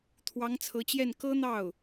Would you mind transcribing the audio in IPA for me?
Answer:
t̪ʰwɑ˧˥ŋt͡sʰɤ˧˥t͡ɕjɛ˥˩n kɤ˥n̪ɑ˥˩ʊ̯

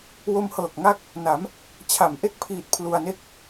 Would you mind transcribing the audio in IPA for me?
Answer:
wo˧mhɤː˨˩k̚ ŋa˥˩k̚ | na˩˦m | t͡ɕʰa˩˦mʔe˦˥k̚pʰiː˨˩t̚ pʰlu˧a̯ne˥˩k̚

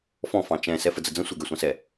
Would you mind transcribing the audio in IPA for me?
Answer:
fɔ̃ fɑ̃t͡ʃɛ̃ sɛfəd͡zəd͡zə̃ sʷə˞ɡɛsʷɑ̃sɛ

